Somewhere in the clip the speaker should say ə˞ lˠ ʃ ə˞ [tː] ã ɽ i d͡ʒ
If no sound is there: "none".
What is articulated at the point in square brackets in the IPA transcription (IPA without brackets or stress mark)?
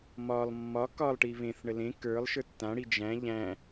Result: tː